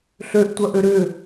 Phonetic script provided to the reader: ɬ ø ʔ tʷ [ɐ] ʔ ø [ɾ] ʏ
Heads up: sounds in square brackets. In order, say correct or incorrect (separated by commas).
correct, correct